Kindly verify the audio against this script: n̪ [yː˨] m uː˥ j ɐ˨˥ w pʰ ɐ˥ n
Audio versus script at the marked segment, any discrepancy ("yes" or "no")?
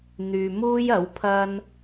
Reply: no